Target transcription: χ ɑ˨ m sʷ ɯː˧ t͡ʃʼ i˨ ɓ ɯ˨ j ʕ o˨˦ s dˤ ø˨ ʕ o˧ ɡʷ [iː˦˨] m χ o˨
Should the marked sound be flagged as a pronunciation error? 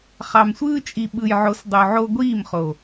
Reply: no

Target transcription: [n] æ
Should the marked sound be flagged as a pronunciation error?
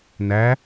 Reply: no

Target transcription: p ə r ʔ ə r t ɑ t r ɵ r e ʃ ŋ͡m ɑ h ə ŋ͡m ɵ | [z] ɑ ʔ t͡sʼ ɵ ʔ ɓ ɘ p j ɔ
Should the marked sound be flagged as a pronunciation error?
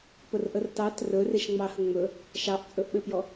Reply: yes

